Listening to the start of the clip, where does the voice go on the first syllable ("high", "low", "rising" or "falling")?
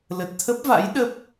low